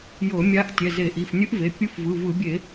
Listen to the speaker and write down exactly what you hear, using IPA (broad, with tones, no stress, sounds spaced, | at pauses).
j ɤ˧˩˧ mʲ a˧˥ ʔ tʲ ɛ˩˧˩ z e˧˩˧ ʔ i˩˧˩ f nʲ ɯ˧˥ ʔ v e˩˧˩ pʲ ɯ˧˥ f v ɯ˩˧˩ v ɯ˧˩˧ bʲ e˧˩˧